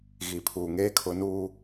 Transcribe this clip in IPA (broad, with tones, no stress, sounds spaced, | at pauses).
ɣ i˨ pʰ uː˨ ŋ eː˦ kʰ ʊ˨˦ n uː˦